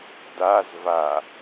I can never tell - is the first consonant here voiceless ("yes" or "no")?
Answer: no